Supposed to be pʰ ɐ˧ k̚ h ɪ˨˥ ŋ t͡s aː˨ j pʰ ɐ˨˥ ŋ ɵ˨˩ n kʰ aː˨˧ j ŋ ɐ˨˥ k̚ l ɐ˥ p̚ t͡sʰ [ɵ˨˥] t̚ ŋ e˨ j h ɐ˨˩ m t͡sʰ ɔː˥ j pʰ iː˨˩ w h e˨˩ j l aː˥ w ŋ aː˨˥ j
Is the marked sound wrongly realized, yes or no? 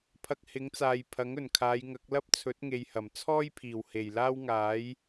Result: no